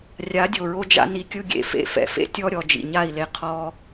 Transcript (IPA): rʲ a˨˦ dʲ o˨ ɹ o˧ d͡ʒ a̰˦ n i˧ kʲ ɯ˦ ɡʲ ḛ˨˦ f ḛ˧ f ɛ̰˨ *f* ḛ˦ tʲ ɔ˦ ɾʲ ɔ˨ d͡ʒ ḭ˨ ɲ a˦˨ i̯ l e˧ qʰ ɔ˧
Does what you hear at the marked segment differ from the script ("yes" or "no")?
no